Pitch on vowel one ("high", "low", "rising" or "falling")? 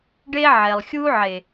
high